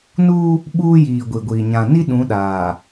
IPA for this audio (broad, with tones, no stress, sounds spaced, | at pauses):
n uː˦ | ɓ uː˦ j iː˨ ɡʷ i˨ ɡʷ iː˨ ɲ ã˨ n i˦ ɗ ũ˨˦ ɗ aː˨